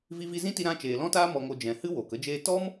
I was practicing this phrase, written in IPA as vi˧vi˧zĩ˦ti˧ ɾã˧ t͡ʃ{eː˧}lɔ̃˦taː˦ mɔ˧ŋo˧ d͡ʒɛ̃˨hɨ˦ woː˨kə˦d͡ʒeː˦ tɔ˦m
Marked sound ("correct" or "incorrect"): incorrect